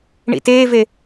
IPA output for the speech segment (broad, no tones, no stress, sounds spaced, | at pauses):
ɳ ḭ t eː v e